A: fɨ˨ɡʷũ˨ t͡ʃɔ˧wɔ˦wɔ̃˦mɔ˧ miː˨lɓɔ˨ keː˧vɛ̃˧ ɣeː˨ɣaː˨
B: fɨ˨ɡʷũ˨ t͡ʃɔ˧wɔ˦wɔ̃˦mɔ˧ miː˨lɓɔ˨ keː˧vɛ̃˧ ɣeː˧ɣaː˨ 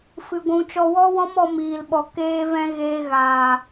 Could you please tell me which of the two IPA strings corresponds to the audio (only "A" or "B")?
B